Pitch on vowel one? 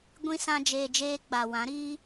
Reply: high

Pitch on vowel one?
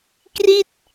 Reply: falling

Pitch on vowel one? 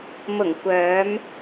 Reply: low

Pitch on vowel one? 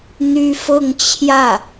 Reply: high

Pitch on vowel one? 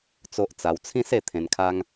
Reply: high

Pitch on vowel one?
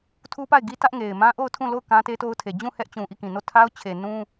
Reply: high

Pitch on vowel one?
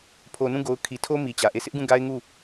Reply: low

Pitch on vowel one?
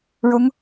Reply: rising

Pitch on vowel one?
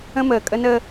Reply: high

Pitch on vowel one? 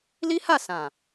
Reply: high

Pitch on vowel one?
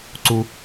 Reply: low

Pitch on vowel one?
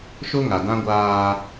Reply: high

